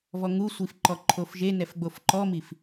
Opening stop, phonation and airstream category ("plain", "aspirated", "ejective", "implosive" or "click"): click